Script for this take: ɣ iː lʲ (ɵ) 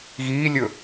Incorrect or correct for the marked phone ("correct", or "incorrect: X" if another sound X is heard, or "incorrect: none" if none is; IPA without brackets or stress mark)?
correct